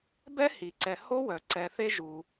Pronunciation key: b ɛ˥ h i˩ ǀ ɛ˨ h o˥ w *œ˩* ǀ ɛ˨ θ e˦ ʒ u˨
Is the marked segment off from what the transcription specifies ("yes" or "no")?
no